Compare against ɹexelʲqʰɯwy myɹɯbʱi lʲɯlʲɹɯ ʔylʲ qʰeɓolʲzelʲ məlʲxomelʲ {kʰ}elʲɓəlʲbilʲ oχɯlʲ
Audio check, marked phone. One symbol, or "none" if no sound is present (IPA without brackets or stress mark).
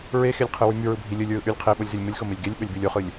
ɡ